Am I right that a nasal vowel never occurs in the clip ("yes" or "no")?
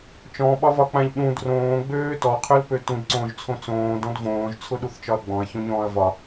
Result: no